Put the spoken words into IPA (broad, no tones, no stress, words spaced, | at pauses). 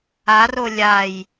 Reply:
aro lʲaj